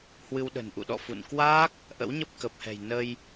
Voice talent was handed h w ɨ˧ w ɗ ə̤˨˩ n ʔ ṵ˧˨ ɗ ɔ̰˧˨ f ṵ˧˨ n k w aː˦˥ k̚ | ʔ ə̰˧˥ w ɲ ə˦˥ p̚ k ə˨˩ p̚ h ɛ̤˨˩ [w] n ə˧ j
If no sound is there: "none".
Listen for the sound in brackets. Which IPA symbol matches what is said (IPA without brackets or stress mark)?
j